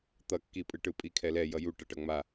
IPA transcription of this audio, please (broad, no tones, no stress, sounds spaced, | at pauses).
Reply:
t̪ ʌ kː i pʼ ɯ ʈ ɯ pʼ i kʰ ɛ l ɛ j ʌ j u ʈ ʌ ʈ ʌ ŋ͡m a